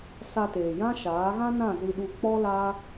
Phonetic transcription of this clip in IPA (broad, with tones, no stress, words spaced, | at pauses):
sa˧teː˨jã˦ʃaː˨˦ ɣã˦nã˦˨zɨ˧ɗu˧ k͡pɔ˦ la˦